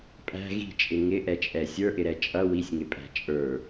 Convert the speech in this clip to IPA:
pʼ æ̤ ɣ i̤ t͡ʃʼ ɪ ŋ ɪ ʔ ɛ t͡ʃʼ ɛ sʲ ə˞ ʔ ɪ ɾ ɛ t͡ʃʼ ʌ w i sʲ ŋ ɪ pʼ æ̤ t͡ʃʼ ə˞

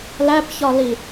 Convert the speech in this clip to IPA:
l æ p ç ɒ l i

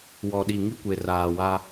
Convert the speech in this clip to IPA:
w ɔ˨ ɗ i˨ ŋ i˦ kʷ e˨ r aː˨ w a˦

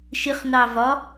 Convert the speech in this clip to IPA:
ʃ ɪ χ n ɑ v ɒ

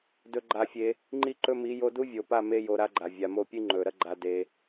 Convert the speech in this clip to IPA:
d ɵ˧ ɡ͡ǃ a˧ fʲ e˧ | ŋ͡ǃ i˦ ǃ ɵ˦ m i˨˦ j o˧ d u˦ vʲ o˨ p a˦˨ m e˧ j o˧ ɾ a˦ ɡ͡ǃ a˨ vʲ a˨ m o˦˨ pʲ ɨ˦ ŋ͡ǃ ɵ˨ ɾ ɐ˦ ɡ͡ǃ a˧ d e˧

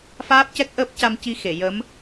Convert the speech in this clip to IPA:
f aː˦˥ p̚ c ɛ˦˥ k̚ ʔ əː˦˥ p̚ c a˧ m c i˧ x e˨˩˨ j ə˧˥ m

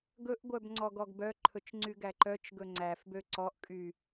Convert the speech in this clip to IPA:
ɡ ɵ ʔ ɡʷ œ b ŋ͡ǀ ɔ ɡ ɔ ɡ b œ ǃʰ ɵ t͡ʃ ŋ͡ǀ y ɡ æ ǃ œ t͡ʃ ɡ ɵ ŋ͡ǀ æ f b ø ǀ ɔ ʔ kʼ y

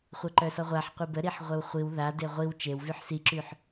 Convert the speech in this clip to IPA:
χʷ ɛ ǃ œ s ɔ ʁʷ a ħ qʷ i b ə ɾ i ħ ʁʷ e w χʷ i w ð a d e ʁʷ i w t͡ʃ e w v y ħ s i ǁ y ħ

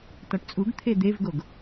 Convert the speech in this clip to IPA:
t ɒ ʈ t͡sʼ u ɡ t̪ʰ e d̪ e v ɡ o ɡ

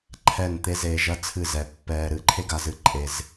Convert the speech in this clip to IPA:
ǃʰ ɛ˦˨ n t̪ e˦ z e˧ ʒ ɐ˦ t͡sʰ ɨ˦˨ z ɛ˨ pː ɛː˧ ɾ ɨ˨˦ ǃʰ e˦ ɡ a˧ z ɨ˧ ǃʼ e˧ z

